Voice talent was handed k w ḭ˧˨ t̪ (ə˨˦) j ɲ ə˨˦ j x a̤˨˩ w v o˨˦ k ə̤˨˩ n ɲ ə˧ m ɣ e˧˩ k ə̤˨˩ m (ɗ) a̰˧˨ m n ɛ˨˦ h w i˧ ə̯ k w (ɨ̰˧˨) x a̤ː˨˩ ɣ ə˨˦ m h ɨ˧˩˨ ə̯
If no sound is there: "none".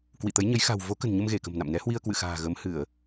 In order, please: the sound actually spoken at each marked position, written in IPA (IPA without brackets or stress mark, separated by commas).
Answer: ə˨˦, n, ɨ̰˧˨